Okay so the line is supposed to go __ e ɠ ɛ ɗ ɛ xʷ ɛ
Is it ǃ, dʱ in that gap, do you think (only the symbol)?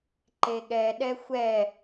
ǃ